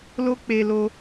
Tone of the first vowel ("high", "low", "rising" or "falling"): high